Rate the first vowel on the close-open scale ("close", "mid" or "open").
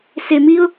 mid